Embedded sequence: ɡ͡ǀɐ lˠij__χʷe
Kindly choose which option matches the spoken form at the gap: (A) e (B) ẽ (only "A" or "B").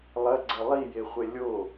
A